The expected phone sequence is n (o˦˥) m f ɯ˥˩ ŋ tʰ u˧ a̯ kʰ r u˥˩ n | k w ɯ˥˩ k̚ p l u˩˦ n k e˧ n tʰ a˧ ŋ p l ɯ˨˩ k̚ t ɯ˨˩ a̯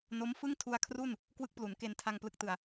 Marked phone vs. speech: correct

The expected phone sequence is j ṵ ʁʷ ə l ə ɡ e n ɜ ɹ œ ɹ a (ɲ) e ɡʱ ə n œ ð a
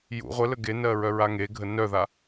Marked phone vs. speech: incorrect: ŋ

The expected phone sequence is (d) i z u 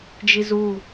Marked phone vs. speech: incorrect: d͡ʒ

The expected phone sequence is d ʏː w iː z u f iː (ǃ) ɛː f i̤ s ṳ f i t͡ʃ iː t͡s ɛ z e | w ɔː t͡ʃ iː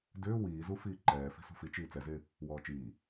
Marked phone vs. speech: correct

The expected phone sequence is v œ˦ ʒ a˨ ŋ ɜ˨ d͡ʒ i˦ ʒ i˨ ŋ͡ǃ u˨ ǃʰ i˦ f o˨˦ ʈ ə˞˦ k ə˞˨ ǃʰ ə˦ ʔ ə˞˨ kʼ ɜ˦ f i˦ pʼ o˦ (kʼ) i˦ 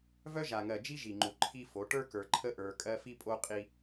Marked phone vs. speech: incorrect: qʼ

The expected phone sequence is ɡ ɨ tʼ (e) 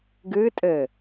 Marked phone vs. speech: incorrect: ɘ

